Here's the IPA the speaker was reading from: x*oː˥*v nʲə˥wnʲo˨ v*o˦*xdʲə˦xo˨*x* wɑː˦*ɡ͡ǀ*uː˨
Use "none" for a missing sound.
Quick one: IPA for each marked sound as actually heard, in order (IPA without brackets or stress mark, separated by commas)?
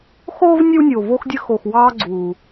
oː˥, o˦, x, ɡ͡ǀ